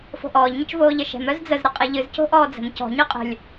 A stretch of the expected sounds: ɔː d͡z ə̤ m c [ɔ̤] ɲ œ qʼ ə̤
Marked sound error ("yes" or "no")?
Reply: no